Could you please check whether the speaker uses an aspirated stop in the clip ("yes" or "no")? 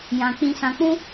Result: no